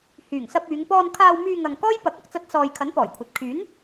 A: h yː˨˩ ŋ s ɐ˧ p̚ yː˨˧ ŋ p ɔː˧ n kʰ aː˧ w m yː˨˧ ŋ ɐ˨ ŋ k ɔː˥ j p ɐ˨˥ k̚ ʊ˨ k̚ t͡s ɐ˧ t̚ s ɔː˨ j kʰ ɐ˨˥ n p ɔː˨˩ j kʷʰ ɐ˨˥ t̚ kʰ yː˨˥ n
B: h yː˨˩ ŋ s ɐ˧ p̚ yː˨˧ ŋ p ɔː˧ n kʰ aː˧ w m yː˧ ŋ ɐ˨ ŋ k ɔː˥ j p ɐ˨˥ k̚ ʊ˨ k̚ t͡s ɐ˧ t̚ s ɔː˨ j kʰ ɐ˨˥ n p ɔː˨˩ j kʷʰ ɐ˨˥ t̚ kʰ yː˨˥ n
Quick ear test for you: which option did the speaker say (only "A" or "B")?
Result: B